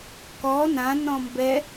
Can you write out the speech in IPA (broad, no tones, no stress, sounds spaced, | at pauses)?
k ɔ n ã n ɔ̃ m b ɛ